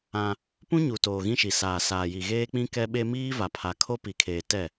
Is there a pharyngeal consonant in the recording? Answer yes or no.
no